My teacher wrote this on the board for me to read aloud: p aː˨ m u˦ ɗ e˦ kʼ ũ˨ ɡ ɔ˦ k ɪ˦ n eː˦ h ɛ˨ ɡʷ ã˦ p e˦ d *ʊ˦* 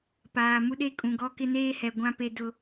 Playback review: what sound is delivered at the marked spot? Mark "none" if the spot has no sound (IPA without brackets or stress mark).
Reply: ʊ˦